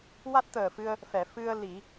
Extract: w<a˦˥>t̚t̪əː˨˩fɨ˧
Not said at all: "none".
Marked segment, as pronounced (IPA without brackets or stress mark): a˦˥